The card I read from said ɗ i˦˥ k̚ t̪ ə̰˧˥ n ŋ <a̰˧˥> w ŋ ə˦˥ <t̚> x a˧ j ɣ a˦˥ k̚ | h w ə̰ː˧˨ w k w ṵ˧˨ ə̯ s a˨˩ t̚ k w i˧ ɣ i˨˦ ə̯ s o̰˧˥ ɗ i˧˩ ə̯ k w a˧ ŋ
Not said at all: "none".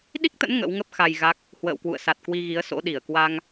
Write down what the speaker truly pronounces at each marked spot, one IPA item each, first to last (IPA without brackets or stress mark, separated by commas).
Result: ə̰˧˥, p̚